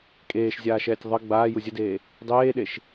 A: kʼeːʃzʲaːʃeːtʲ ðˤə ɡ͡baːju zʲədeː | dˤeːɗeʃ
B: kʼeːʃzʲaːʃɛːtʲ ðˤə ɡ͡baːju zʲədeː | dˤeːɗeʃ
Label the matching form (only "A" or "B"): B